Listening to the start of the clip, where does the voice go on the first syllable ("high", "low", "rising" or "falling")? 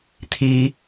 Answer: high